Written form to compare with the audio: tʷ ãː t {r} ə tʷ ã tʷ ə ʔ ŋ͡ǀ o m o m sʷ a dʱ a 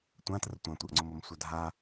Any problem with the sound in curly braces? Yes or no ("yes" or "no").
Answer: no